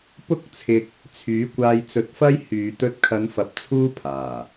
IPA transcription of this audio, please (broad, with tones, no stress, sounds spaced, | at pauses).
p ʊ˥ k̚ t͡sʰ ɪ˧ k̚ | t͡sʰ yː˨˥ kʷ aː˧ j t͡s ɵ˧ t̚ f ɐ˥ j h yː˨ t̪ ɵ˧ t̚ kʰ ɐ˨˧ n f ɐ˨ p̚ t͡sʰ uː˥ pʰ aː˨˩